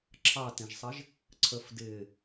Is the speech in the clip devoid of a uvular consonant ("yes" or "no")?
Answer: yes